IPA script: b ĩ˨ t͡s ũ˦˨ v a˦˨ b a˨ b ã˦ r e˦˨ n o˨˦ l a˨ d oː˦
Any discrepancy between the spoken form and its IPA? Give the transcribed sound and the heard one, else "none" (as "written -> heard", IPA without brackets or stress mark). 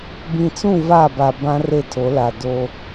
n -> tʰ